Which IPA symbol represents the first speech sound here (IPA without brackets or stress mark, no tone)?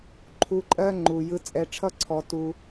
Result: ǃʰ